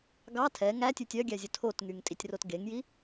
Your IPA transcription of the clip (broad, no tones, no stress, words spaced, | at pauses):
ɡɑ tʰɛ ŋætʲʉtʲ œɡʲæzʲɵ tʰotŋyŋ tʼitʲrotɡeŋji